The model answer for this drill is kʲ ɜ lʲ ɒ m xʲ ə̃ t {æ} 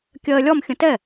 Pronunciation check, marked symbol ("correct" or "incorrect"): incorrect